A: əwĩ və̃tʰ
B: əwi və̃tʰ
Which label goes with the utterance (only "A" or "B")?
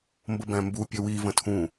B